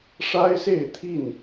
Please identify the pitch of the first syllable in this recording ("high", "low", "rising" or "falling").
high